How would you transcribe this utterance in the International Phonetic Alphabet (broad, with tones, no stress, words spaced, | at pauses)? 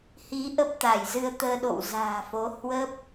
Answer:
hi˨˦ ʔə˦˥p̚t̪a˧˩jzɨ˧ə̯t̪əː˧ ɗo̰˧˨wza̤ː˨˩fo˨˦ hwə˦˥p̚